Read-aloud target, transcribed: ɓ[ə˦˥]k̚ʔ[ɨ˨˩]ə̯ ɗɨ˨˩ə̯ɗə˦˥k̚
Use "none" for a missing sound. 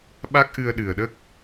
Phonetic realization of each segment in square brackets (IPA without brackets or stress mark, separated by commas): a˦˥, ɨ˧